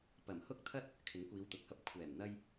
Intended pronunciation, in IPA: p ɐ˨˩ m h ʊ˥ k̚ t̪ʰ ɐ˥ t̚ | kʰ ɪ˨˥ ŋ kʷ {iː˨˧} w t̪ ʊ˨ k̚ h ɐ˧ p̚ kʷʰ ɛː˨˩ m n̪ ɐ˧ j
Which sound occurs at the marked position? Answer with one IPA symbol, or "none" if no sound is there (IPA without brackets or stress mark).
iː˨˧